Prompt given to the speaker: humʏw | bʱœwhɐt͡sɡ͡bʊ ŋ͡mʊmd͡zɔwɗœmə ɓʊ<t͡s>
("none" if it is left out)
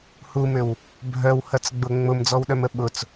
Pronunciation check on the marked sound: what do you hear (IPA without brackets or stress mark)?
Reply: t͡s